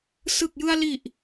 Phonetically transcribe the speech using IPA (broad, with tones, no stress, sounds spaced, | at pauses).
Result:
s ɯ˨˩ k̚ j ɯ˧ a̯ l i˨˩ ʔ